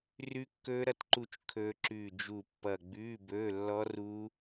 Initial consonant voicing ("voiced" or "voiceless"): voiced